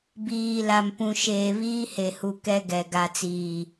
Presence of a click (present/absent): absent